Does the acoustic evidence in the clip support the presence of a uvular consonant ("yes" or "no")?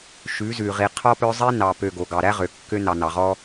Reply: yes